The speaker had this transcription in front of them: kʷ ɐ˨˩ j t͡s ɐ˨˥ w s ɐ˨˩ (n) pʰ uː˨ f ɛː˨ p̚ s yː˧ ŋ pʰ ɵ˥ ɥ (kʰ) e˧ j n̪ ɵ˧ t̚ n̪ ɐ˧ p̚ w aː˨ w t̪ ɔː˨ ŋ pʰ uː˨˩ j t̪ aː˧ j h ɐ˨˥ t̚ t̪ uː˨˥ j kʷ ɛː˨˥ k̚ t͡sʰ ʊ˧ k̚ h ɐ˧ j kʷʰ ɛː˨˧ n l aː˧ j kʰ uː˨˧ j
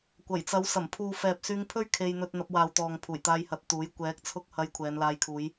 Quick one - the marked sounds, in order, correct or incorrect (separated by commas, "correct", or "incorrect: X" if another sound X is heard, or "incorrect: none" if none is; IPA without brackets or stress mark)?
incorrect: m, correct